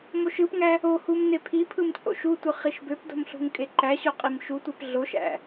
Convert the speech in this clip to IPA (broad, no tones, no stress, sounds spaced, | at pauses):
m o ʃ ɯ p ŋ æ | o h u m n e pʰ i pʰ ɯ m t͡sʼ o̰ ʃ u tʷ ɯ χ i ʃ b ø p d o̤ m ɬ ṳ ŋ kʼ e ǃ æ ɕ o qʼ i m ʃ u tʷ e p ɮ o ʃ æ̰